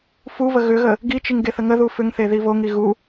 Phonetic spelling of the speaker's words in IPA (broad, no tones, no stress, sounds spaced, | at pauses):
f u v ə ɣ ʏ ɣ ə | ɡ i t͡ʃ i ŋ ɡ e θ ə ŋ ə ð u f ʏ ŋ θ e ð i v o ŋ i ɣ u